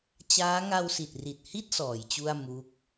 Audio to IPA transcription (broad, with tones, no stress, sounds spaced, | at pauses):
t͡ɕ aː˦˥ ŋ a˧ w s i˨˩ t̚ r i˨˩ t̚ h i˥˩ t̚ s ɔː˩˦ j t͡ɕ u˥˩ a̯ m u˦˥ k̚